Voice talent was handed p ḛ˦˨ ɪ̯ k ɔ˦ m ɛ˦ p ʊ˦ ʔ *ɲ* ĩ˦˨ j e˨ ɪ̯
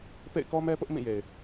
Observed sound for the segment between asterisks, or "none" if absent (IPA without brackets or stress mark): m